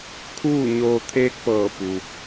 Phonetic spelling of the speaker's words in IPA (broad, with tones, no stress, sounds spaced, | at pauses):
kʰ uː˥˨ ɲ oː˧ t̪ʰ eː˧˥ k̚ p ɤː˧˩ p u˩